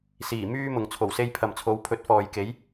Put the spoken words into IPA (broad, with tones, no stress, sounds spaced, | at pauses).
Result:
s iː˨˩ m yː˥ m ʊ˨ ŋ t͡sʰ o˨˩ w s e˧ j pʰ ɐ˨ m t͡sʰ o˨˧ w pʰ ɵ˨˥ t̚ f ɔː˨ j k e˨˥ j